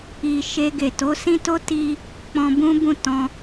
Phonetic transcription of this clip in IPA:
i˨ ʃe˧ɡe˨ to˨˦sĩ˦to˦ ti˦ | k͡pɔ̃˧bũ˦bũ˦˨tɔ̃˧

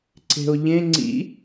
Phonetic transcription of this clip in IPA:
ǀe̤o̯ʎẽ ŋ͡ǀḭ

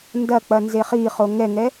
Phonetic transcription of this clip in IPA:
ndɐ k͡pɐnzeχiχo ŋɛŋɛ

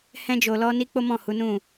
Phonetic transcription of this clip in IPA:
hɛ̃˦d͡ʒo˧lɔ˦ni˦ k͡po˦mɔ̃˦˨ hu˨˦nũ˦˨

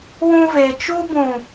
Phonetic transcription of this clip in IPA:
wũ˦ve˨ t͡ʃu˦bũ˨

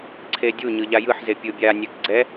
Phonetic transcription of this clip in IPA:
ǀʰedʲu ɲɯʎajɯħze pʲɯbʲa nʲɛkɡ͡ǀɛ

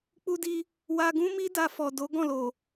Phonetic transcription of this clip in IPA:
k͡pu˧di˧ | wa˧ɡũ˦mi˦ da˧fɔ˨do˨˦ ɡɔ̃˦˨lo˨

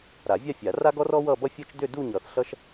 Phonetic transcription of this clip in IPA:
ɾa˨˩˦vʲa˥˧fʲa˨˩˦ ra˥ɡɔ˥r ɔ˥wʌ˥˧bʌ˥ fʲʌ˥t͡ʃ dʏ˥˧du˥˧ɲʌ˨˩˦θ ɬʌ˥ʃ

